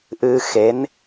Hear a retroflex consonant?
no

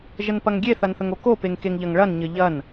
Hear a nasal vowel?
no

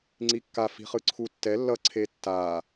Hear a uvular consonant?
yes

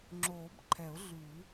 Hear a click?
yes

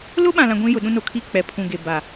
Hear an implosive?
yes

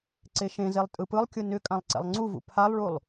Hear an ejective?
yes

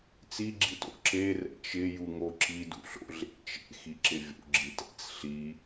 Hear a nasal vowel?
no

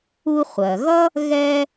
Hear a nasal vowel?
no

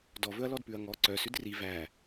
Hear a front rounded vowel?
yes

